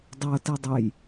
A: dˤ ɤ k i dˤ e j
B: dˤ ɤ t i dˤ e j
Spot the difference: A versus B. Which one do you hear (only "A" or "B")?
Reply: B